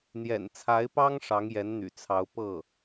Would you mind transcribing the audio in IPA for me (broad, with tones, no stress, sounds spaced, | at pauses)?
n̪ j ɛ̰˨˩ n t͡sʰ a˧˥ ɪ̯ p ɑ˥ ŋ ʂ ɑ˧˥ ŋ j ɛ˧˥ n n̪ y̰˨˩ t͡sʰ ɑ˧˥ ʊ̯ p ɤ˥˩